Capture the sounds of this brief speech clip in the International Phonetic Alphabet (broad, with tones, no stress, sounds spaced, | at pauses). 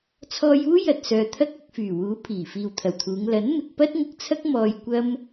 t͡sʰ ɔː˧ j uː˥ j ɐ˨ t̚ s œː˨ t̪ʰ ɐ˥ k̚ ɐ˧ k̚ f yː˨˩ w uː˨˥ pʰ iː˨˩ f iː˨ w t̪ʰ ɐ˨˩ w t̪ʰ uː˨˧ ŋ l ɐ˨˥ n m ɪ˧ k̚ p ɐ˥ t̚ ŋ ʊ˧ k̚ t͡sʰ ɐ˥ k̚ m ɔː˧ j kʷ ɐ˥ m